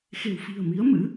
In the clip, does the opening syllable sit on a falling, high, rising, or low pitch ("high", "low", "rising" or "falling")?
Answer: low